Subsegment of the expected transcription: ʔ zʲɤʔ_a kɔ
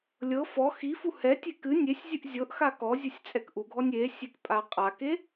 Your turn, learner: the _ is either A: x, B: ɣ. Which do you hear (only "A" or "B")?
A